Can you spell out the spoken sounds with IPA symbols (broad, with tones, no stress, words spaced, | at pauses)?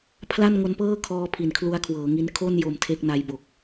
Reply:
pʰla˥˩n ŋo˦˥npɤː˥˩ kʰɔː˦˥ pʰi˨˩nkʰlu˦˥a̯kʰwɤː˩˦ŋi˦˥n kʰo˥˩n jo˧mtʰe˥˩k̚ na˦˥jbo˨˩k̚